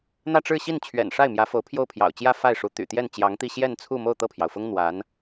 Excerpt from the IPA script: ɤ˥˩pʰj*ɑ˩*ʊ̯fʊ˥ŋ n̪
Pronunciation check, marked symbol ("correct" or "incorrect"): correct